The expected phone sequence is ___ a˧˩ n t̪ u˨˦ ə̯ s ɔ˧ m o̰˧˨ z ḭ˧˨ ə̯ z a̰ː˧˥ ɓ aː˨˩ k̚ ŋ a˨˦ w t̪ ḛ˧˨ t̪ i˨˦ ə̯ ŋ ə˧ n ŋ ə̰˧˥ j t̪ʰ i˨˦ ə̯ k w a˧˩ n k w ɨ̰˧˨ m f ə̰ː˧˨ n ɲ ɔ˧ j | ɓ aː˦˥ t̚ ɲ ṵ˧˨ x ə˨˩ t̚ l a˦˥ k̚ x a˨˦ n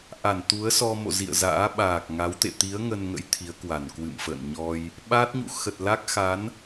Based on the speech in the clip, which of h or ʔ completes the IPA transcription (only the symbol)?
ʔ